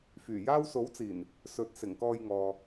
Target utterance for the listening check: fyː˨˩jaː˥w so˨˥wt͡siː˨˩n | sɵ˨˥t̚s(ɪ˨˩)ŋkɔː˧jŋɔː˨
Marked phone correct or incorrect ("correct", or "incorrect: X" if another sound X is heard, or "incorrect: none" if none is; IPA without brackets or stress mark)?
correct